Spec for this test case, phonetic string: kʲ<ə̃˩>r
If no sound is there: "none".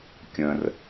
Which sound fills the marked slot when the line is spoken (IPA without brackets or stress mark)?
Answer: ə̃˩